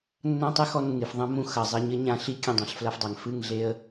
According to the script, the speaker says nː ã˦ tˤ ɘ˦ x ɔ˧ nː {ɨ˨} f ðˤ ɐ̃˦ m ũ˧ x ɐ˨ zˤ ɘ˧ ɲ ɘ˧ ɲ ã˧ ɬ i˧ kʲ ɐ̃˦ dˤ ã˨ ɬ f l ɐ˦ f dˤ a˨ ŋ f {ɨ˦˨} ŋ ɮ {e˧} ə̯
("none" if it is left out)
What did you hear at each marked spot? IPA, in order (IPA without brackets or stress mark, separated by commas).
ɨ˨, ɨ˦˨, e˧